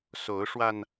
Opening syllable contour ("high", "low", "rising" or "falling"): rising